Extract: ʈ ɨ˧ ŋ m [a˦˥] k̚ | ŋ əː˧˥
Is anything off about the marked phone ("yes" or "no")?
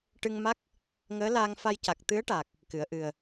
no